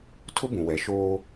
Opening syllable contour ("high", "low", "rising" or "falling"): high